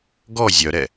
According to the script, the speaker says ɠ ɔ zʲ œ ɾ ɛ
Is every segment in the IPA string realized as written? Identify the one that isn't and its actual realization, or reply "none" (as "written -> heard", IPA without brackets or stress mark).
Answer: ɠ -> ɡ